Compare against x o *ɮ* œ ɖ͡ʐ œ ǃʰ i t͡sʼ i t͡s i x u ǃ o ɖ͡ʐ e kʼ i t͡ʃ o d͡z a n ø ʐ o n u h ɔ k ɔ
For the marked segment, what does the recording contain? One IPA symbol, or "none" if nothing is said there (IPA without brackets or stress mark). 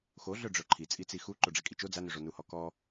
ɮ